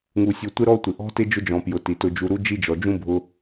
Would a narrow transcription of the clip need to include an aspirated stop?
no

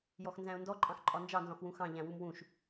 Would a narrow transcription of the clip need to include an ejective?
yes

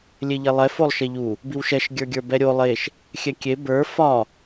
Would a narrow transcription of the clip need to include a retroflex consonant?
no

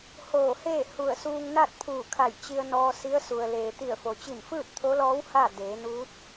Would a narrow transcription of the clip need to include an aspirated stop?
yes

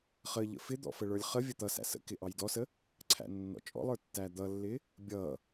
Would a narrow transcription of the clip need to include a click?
yes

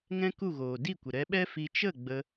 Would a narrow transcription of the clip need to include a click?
no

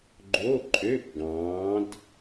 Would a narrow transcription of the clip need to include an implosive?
no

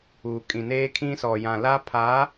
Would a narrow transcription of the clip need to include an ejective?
yes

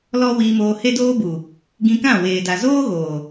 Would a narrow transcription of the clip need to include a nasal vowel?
yes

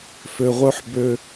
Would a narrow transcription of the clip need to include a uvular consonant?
yes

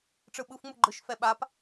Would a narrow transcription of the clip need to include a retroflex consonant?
yes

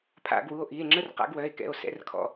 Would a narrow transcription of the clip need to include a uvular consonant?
yes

